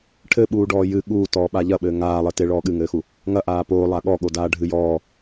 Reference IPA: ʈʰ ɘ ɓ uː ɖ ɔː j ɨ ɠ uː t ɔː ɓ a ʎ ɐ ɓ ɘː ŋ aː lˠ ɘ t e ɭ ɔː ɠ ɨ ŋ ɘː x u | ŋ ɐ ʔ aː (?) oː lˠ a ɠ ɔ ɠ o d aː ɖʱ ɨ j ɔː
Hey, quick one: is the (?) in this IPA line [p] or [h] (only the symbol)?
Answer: p